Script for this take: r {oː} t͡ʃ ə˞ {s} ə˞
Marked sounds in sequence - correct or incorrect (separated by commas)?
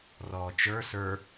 incorrect, correct